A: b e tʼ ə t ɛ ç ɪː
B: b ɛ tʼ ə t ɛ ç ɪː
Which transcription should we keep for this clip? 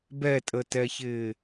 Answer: B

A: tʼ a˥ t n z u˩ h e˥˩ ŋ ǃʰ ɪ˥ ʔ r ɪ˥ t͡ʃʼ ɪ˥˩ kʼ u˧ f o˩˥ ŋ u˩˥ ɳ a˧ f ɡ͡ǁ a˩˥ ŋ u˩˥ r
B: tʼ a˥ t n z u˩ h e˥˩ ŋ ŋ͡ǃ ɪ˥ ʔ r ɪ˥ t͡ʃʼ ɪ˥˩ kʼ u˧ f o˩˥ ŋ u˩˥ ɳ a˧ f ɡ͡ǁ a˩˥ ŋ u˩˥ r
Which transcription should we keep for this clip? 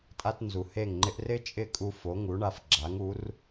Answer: B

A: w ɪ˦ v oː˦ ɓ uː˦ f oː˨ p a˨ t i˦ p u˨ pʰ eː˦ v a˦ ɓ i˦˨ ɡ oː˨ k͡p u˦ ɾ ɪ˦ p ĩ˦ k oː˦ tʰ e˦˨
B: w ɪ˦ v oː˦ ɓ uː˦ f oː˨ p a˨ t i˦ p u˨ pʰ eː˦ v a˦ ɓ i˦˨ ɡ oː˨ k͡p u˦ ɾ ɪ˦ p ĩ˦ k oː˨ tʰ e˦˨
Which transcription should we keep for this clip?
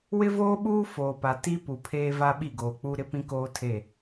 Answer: A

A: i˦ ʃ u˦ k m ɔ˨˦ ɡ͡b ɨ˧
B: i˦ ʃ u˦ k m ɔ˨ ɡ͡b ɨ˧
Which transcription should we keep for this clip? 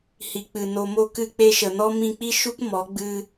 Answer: A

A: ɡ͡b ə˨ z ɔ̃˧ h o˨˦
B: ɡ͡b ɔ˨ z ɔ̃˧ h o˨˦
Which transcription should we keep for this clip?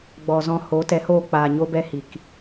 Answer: B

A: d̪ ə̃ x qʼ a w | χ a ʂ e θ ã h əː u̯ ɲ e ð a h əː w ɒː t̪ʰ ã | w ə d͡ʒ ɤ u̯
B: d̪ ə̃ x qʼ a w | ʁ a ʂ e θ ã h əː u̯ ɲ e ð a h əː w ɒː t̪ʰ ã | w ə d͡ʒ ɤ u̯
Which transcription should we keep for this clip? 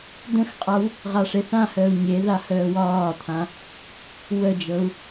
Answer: B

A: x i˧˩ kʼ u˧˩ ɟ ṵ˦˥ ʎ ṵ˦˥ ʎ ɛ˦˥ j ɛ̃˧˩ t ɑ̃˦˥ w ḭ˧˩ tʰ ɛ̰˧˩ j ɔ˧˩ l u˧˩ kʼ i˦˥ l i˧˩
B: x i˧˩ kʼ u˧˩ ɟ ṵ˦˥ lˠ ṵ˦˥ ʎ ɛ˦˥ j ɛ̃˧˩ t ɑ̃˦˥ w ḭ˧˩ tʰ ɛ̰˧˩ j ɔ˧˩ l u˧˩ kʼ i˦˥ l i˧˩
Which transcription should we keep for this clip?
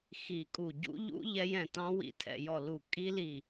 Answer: A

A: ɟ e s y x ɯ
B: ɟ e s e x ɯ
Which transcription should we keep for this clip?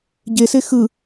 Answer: B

